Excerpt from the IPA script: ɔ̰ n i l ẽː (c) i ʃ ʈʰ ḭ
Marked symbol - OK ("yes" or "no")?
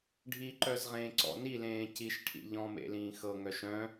yes